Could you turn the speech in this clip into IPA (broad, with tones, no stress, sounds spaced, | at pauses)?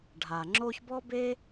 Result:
ɖʱ a˩ ŋ͡ǁ o˦ ç b ɔ˥ b e˥